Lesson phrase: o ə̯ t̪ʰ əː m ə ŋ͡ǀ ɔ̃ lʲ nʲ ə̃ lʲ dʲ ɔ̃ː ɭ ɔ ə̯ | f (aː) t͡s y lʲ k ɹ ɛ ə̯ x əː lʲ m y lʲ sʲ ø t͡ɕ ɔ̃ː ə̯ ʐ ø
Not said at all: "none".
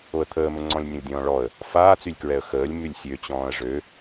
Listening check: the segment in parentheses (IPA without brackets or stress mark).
aː